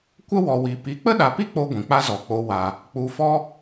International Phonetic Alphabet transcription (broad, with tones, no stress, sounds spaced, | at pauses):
kʷ ə˦ w ɔ˨ w i˨ p i˨˦ k͡p ə˦ ɗ a˨ p i˦ k͡p o˧ ɡʷ ĩ˨ k͡p a˦ z ɔ˨ k͡p o˧ w a˨ | k͡p u˧ f ɔ˦